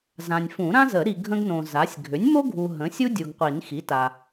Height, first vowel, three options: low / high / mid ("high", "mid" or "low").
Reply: low